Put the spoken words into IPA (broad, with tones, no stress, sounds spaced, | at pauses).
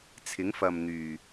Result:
t͡sʰ ɪ˨˥ ŋ f ɐ˨ m n̪ yː˨˩